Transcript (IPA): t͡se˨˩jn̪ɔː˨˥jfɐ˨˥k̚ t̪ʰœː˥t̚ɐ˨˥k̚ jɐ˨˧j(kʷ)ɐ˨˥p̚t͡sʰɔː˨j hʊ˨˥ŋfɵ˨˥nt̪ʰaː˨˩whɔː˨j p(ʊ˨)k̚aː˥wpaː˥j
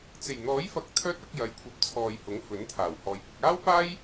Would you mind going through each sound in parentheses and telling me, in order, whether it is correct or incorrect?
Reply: incorrect, correct

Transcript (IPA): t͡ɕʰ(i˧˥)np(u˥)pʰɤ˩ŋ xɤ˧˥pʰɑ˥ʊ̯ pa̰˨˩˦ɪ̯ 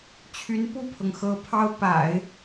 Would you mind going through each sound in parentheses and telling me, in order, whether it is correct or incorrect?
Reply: incorrect, incorrect

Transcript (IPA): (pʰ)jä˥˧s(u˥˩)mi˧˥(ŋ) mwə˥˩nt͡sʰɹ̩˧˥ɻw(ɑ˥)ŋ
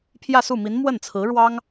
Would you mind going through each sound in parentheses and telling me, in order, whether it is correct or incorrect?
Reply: correct, correct, incorrect, correct

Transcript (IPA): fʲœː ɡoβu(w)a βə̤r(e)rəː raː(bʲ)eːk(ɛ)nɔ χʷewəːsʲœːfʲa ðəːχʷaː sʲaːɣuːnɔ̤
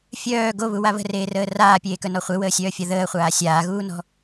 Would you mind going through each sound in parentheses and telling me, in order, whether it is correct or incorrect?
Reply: correct, incorrect, incorrect, incorrect

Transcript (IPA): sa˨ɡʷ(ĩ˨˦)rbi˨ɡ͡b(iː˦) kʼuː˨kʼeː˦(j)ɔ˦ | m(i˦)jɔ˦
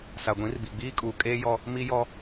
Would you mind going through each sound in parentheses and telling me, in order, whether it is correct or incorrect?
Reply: correct, correct, correct, correct

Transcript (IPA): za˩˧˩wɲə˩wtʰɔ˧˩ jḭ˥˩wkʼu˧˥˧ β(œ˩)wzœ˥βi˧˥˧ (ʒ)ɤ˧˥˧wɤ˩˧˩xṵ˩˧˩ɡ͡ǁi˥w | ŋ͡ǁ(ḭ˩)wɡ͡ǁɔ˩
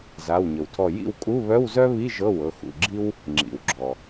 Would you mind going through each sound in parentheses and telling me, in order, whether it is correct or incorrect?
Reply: incorrect, correct, correct

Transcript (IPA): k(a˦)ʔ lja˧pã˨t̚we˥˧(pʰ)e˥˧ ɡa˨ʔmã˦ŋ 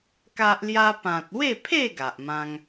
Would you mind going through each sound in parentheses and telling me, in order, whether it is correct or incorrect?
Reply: correct, correct

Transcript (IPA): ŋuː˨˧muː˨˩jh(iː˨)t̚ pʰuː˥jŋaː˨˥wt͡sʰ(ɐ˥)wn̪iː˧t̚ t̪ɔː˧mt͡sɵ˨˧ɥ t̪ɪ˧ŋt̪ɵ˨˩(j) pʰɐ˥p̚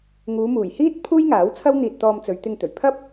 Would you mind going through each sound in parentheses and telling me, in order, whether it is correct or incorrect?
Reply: incorrect, correct, incorrect

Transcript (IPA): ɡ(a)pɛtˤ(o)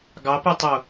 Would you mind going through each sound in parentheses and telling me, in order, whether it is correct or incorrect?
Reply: incorrect, correct

